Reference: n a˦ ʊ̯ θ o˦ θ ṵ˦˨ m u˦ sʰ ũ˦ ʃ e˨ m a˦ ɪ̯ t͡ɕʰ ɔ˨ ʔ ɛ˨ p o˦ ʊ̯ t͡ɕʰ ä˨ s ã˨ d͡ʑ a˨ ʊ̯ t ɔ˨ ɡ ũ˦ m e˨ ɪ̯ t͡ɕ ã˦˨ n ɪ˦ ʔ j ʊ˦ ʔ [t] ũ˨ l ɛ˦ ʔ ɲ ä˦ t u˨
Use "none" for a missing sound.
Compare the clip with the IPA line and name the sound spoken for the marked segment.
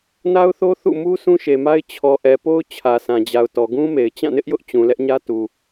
t͡ɕ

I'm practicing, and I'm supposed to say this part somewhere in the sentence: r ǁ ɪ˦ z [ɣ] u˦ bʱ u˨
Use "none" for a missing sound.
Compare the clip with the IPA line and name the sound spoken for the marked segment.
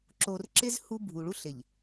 h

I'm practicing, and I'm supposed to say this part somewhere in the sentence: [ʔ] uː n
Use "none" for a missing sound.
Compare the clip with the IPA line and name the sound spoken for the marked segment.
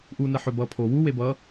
ʔ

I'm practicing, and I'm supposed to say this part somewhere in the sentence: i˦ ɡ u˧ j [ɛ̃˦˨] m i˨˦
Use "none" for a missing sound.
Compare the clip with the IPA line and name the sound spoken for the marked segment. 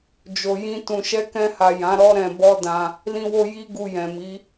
ɛ̃˨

